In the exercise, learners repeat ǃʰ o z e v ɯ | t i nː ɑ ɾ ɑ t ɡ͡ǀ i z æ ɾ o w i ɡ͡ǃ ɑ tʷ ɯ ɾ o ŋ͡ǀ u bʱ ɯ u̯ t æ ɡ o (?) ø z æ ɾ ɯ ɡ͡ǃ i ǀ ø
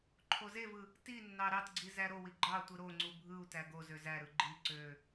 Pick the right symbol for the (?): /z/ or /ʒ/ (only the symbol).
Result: z